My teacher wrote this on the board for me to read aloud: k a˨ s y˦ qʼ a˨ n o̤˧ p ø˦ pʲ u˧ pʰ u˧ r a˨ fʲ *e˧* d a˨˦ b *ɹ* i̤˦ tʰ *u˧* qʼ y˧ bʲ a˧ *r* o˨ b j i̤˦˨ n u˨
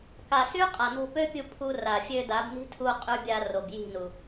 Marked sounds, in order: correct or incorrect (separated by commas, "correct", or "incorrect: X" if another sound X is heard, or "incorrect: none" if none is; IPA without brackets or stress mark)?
incorrect: ø˧, incorrect: n, correct, correct